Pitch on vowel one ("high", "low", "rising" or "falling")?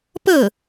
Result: falling